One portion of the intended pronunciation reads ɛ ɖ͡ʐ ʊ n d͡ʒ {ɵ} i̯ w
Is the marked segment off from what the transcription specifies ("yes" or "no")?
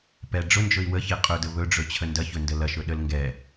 no